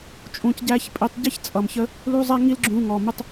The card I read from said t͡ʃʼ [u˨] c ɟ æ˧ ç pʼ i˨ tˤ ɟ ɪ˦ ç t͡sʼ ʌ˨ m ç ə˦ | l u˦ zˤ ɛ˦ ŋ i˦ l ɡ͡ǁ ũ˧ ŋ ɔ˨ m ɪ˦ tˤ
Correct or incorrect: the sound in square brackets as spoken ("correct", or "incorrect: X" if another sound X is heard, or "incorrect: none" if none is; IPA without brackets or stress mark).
incorrect: ũ˨